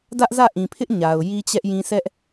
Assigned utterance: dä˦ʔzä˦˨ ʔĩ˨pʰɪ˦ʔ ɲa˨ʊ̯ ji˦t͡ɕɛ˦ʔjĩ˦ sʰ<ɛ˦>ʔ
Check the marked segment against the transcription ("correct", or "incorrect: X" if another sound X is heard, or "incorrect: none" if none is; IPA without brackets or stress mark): correct